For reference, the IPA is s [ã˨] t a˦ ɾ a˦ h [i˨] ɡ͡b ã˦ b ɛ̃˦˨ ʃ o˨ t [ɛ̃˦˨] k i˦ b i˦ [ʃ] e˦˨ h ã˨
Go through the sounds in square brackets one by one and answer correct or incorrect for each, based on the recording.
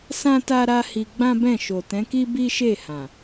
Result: incorrect: ã˦, incorrect: i˧, incorrect: ɛ̃˨˦, correct

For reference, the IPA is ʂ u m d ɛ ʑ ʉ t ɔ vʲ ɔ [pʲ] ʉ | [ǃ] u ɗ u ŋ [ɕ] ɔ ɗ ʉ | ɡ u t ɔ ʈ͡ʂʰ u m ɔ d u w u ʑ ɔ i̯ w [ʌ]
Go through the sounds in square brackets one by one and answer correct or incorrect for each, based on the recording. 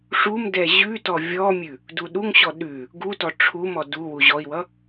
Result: incorrect: mʲ, incorrect: d, correct, correct

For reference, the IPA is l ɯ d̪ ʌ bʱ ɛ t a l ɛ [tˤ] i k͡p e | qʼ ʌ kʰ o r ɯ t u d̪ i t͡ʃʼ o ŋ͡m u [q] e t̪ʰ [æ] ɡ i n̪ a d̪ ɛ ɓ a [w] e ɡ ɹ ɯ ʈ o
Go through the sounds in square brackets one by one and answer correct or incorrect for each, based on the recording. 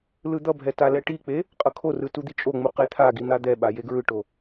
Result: incorrect: ʈ, correct, incorrect: a, incorrect: j

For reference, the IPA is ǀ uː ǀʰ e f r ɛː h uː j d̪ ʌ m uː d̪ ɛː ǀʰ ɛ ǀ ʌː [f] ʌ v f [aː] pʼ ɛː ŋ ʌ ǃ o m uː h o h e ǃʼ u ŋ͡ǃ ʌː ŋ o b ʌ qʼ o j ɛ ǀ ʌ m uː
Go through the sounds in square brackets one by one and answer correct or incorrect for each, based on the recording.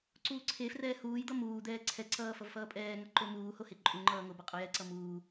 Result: correct, incorrect: ʌː

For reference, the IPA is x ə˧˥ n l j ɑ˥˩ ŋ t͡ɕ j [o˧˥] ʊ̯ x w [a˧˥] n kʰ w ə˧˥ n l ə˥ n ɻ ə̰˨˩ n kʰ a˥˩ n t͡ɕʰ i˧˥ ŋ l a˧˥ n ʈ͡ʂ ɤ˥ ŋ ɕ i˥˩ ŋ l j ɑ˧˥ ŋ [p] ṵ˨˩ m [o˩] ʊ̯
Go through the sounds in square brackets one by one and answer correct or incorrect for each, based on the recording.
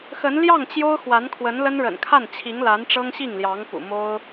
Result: incorrect: o˥, correct, correct, incorrect: o˥

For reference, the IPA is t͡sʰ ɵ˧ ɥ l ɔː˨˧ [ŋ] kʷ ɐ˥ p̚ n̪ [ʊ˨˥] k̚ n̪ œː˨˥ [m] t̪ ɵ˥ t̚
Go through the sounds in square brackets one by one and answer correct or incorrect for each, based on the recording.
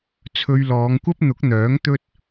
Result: correct, correct, incorrect: ŋ

